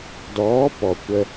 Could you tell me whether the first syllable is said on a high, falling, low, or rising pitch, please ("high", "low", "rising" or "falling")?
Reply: rising